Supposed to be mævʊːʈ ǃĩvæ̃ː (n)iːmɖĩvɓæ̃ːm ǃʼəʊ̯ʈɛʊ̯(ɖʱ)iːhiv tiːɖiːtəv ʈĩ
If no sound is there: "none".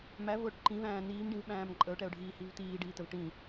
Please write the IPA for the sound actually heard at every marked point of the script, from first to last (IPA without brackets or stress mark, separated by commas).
n, ɖʱ